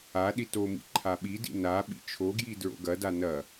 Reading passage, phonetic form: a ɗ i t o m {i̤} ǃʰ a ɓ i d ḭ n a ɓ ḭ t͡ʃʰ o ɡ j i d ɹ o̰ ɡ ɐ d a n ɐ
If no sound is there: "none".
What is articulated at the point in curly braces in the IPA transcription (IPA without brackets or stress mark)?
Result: ḭ